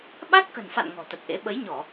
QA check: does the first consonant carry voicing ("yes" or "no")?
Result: yes